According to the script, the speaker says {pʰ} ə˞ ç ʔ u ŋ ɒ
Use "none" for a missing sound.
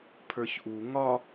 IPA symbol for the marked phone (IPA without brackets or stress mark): pʰ